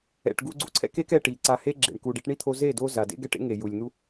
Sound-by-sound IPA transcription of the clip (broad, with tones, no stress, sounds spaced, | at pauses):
ɛ̰˨ ʈ ɡ u˧ ɡ͡ǀ u˧ ǀʰ ɛ̰˦ k e˦ k ɛ˧ ʈ i˨ ǀ a˧ h e˦ ɡ͡ǁ ḛ˨ ɳ k u˨ ɖ e˧ ʈ ɳ i˦ t̪ʰ o˧ z e˦˨ d o˦ z a˨ d ḛ˦ ɡ ɛ˦˨ ʈ ḛ˦ ŋ e˨ j u˨ lʲ n̪ u˦